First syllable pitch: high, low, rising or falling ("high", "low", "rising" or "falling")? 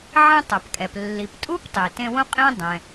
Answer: high